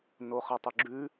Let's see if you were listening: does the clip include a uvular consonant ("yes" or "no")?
yes